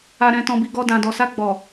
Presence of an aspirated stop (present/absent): absent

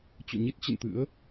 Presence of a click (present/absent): absent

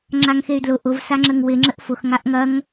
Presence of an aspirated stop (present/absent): absent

